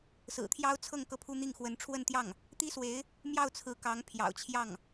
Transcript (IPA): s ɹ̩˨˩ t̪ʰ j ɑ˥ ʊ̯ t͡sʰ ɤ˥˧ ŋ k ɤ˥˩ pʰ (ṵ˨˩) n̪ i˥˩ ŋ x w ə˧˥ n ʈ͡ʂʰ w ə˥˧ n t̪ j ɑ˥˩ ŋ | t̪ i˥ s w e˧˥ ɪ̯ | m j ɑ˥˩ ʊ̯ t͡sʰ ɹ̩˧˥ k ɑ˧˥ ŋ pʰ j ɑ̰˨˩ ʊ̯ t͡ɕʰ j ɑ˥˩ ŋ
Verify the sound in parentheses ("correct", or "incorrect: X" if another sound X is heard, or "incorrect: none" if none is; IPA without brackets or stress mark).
incorrect: u˥